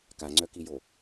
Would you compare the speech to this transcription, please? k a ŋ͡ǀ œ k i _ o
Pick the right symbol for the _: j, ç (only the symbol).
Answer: j